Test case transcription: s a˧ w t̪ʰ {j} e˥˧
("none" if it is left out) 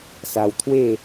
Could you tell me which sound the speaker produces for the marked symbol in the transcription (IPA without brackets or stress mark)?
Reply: w